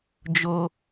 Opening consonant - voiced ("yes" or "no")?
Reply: yes